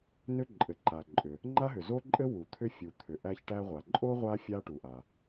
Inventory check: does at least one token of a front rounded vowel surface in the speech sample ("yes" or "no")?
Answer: yes